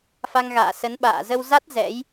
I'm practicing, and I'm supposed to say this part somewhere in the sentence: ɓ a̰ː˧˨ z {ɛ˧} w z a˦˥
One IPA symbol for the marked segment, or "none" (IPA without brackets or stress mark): ə˧